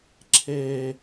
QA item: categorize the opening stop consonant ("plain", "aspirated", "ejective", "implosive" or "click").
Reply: click